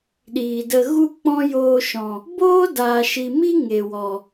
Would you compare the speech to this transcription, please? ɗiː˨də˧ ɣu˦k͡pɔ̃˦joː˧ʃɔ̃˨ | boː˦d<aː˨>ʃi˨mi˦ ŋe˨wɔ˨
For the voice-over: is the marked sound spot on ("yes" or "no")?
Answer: yes